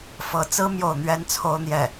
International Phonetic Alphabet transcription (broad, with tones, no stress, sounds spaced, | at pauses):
f ɤ˧˥ t͡s ɹ̩˥ m j o˥˩ ʊ̯ n̪ ɥ ɛ˥ n t͡sʰ o˥ ʊ̯ n̪ j ɛ˥˩